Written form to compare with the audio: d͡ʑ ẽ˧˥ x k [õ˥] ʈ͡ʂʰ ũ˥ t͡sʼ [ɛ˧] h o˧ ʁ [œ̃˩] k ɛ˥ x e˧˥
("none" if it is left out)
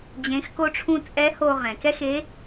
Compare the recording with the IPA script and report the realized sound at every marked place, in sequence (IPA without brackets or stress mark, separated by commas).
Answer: o˥, ɛ˧˥, ɛ̃˩